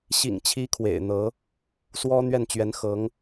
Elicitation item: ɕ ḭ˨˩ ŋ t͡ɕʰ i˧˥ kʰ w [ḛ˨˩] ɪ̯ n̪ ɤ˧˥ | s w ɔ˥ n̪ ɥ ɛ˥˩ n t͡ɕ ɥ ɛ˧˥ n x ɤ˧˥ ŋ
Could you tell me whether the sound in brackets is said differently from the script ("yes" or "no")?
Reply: no